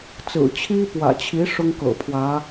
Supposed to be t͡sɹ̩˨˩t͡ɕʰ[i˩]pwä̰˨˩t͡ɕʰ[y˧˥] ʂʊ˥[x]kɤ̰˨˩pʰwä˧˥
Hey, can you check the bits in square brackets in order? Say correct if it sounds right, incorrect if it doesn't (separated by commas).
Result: incorrect, incorrect, incorrect